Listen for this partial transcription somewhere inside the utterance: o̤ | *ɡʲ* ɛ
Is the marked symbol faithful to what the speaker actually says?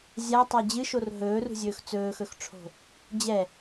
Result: no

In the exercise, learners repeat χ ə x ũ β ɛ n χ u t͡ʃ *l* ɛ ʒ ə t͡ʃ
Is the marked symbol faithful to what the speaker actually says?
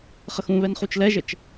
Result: yes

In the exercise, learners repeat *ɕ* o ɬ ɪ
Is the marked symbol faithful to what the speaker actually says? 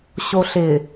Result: yes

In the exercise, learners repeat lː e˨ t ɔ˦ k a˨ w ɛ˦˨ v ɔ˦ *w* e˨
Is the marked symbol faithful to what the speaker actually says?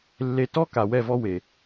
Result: yes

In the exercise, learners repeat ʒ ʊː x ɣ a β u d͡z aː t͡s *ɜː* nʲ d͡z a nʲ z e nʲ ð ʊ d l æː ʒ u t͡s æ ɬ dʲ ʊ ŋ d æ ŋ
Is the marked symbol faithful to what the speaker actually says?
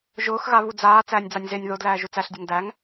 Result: no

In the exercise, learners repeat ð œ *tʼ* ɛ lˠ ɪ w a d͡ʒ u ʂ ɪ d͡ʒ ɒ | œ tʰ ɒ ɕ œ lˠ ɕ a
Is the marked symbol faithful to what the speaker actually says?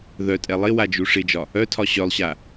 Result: yes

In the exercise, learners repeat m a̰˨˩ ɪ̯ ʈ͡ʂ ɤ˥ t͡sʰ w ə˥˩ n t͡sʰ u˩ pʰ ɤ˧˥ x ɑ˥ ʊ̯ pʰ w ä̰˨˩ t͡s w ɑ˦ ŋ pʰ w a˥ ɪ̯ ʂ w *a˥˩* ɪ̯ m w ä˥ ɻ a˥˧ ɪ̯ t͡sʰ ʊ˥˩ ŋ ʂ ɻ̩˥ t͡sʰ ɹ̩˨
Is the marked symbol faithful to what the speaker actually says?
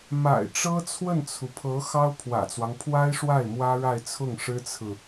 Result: yes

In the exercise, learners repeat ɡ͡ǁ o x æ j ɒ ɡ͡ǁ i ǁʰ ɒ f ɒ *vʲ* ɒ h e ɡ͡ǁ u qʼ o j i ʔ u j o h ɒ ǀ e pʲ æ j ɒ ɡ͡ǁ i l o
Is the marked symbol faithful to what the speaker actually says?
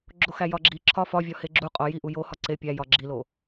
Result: yes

